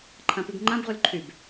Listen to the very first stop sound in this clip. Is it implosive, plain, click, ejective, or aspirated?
click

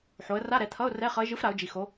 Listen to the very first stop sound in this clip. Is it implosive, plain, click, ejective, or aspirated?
aspirated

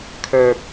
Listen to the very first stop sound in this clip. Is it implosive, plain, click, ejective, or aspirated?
aspirated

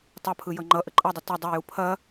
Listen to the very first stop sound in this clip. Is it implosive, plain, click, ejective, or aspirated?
plain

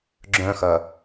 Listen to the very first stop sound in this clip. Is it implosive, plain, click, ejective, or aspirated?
click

